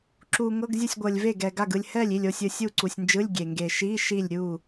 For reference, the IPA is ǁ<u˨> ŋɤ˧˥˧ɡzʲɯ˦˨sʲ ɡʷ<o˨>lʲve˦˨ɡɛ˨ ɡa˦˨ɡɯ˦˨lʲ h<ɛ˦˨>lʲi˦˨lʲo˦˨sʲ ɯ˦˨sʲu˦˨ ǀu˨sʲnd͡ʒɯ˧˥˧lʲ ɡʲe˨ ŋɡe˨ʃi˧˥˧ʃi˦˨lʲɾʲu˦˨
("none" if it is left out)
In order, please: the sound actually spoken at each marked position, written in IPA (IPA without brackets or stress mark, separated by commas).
u˨, ɤ˨, ɛ˦˨